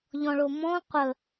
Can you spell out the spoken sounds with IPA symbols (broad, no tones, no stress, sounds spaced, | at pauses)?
ʎ ɔ̃ ɭ o m ɔ̃ qʷ ə